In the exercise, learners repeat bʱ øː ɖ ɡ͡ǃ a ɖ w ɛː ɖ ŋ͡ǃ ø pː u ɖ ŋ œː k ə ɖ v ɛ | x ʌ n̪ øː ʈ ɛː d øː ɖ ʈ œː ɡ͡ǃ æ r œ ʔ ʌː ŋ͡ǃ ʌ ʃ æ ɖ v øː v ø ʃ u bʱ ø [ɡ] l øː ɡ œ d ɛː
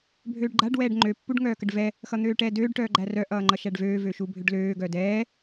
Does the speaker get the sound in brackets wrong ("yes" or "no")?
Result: yes